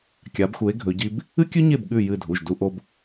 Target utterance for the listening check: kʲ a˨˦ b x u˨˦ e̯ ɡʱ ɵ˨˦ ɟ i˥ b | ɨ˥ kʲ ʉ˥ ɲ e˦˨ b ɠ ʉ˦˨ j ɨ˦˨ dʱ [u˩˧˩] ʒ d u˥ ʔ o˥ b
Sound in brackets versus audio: correct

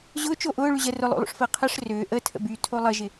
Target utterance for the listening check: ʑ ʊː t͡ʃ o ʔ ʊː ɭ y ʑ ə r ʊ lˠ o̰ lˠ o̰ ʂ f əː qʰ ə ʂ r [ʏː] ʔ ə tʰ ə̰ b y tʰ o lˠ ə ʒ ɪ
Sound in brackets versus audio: correct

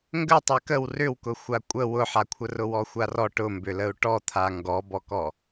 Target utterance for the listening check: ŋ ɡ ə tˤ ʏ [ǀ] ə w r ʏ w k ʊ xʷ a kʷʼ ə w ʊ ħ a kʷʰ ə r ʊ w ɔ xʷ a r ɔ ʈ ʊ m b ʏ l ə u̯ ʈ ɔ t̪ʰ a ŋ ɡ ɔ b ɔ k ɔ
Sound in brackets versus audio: incorrect: k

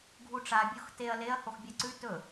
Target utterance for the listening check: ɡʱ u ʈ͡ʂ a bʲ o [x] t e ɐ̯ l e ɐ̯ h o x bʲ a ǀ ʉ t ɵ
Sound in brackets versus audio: correct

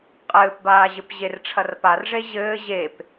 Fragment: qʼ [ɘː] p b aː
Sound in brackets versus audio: correct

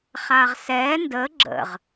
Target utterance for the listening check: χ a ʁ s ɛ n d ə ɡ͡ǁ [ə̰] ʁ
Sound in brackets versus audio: correct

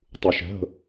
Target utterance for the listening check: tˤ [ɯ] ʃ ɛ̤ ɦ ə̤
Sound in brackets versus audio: incorrect: u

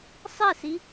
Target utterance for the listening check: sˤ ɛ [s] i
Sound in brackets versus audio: correct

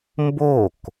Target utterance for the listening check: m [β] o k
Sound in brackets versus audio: incorrect: b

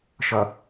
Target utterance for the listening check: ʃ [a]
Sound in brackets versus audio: incorrect: ʌ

